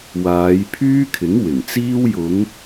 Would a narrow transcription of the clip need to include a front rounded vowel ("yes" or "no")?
yes